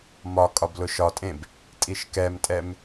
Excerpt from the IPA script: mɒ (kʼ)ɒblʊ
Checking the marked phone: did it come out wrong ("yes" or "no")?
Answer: no